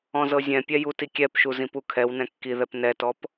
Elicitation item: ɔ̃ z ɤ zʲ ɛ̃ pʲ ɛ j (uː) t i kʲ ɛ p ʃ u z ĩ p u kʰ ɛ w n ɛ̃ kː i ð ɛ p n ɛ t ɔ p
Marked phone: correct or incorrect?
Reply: incorrect